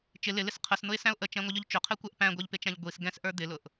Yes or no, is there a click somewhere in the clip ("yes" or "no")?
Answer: no